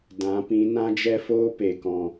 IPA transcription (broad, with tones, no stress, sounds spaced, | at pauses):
d ã˨˦ p ĩ˨˦ n ã˦ d͡ʒ ɛ˦ f oː˦ p e˨ k ɔ̃˨